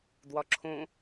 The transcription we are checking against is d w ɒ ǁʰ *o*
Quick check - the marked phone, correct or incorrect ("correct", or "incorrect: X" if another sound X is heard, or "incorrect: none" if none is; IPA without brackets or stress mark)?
incorrect: õ